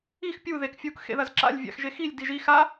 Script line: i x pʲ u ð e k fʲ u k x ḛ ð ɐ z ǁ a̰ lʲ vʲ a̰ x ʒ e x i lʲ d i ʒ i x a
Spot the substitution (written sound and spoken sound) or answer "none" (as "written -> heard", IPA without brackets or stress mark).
none